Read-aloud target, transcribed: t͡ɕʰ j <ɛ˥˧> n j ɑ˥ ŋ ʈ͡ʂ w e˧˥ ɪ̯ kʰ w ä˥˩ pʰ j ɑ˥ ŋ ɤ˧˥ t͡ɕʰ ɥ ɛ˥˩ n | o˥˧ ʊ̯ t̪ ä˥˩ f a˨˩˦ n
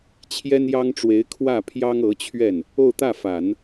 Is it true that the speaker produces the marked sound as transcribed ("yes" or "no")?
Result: no